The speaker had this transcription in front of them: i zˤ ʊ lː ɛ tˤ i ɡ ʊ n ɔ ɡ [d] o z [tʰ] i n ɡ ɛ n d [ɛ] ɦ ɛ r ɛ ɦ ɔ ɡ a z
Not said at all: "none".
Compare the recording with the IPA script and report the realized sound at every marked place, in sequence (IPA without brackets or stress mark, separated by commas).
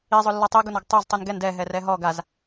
tˤ, tˤ, ɛ